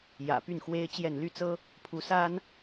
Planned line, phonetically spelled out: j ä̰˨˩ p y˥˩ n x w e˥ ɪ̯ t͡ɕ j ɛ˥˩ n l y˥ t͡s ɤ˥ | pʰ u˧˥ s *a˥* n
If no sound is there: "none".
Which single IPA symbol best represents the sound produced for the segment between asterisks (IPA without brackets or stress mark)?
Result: a˥